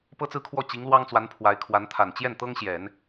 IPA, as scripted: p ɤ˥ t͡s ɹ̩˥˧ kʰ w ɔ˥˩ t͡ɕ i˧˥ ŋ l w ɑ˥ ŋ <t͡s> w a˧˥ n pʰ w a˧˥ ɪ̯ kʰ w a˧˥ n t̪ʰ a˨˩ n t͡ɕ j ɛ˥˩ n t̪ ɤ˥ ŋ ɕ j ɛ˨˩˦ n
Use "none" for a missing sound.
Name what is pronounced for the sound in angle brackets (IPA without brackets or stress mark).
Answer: t͡s